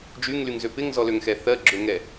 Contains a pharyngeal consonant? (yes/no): no